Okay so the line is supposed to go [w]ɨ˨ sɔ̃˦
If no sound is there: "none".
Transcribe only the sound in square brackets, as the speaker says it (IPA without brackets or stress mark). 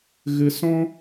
ɣ